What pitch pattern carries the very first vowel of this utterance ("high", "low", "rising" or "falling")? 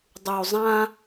low